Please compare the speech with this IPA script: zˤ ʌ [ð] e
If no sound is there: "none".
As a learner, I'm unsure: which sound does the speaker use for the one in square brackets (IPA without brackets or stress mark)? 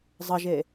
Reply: ʒ